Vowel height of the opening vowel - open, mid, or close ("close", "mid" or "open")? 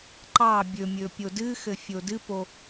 open